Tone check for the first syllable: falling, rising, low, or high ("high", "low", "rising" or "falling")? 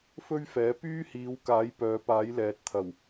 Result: high